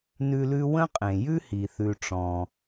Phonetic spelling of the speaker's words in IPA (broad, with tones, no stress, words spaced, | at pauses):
nʉ˦lʉ˥ wə̃˥qʼẽ˩jʉ˥hi˩ θʉ˨ʈ͡ʂɔ̃˩